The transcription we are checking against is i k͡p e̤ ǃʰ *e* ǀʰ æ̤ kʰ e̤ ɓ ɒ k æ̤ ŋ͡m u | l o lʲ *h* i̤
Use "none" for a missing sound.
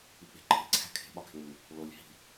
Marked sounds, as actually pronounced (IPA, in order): e̤, h

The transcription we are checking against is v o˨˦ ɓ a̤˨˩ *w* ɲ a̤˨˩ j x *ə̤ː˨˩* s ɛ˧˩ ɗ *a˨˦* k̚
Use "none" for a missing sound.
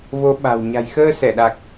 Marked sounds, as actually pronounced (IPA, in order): w, əː˧, a˨˩

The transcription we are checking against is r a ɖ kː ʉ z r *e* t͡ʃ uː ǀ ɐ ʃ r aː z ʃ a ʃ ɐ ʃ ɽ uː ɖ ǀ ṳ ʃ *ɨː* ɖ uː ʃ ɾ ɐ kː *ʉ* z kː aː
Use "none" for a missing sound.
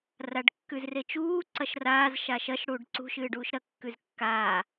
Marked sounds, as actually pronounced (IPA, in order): e, ɨː, ʉ

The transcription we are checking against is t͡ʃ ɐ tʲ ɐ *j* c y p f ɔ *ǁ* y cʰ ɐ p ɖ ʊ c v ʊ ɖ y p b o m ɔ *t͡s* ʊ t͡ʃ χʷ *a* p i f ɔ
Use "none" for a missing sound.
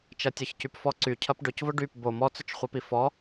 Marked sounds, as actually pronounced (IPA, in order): ç, ǀ, t͡s, ɐ

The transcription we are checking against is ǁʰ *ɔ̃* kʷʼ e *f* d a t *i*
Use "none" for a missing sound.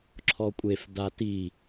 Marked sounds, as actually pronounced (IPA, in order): ɔ, f, i

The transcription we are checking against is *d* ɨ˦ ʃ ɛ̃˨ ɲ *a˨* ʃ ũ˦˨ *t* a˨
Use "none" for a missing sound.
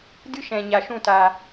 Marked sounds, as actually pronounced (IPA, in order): d, a˨, t

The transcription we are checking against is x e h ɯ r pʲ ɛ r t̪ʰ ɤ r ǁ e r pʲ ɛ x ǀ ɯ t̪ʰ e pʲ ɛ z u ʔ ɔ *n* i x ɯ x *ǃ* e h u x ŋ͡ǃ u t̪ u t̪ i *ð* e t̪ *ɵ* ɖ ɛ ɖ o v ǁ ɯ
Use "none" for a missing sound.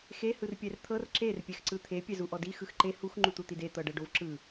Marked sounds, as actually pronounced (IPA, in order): d, ǃ, d, ɤ

